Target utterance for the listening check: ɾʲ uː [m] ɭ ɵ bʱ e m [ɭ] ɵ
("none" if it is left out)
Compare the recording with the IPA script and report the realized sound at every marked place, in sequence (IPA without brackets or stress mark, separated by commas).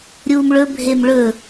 m, ɭ